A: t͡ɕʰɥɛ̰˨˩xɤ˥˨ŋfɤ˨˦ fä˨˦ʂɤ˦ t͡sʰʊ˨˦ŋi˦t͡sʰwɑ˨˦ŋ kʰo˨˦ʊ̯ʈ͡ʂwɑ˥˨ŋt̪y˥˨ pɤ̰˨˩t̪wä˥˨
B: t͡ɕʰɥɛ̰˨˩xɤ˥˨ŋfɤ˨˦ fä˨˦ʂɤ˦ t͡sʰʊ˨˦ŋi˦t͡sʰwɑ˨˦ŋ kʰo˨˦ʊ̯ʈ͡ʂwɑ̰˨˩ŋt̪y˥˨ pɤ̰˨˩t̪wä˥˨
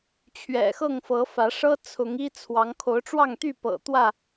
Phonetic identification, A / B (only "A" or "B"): A